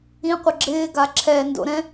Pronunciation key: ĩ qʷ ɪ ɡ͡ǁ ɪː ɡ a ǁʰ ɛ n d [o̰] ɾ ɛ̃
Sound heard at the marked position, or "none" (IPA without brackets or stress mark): o̰